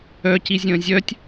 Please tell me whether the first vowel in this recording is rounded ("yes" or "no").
yes